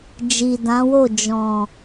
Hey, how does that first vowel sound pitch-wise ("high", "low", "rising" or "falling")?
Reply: low